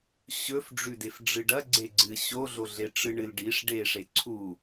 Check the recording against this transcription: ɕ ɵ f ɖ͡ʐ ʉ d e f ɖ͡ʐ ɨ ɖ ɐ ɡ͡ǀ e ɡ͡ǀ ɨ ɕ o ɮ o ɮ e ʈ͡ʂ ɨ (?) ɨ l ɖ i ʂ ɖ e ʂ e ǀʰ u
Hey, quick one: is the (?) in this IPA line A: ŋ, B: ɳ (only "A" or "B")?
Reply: B